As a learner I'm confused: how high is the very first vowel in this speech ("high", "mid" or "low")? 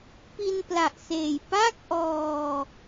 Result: high